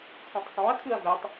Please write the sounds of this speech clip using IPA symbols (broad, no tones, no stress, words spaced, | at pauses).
kʷʰẽtˤsˤõɐ̯ kʰɯɐ̯vɛtˤ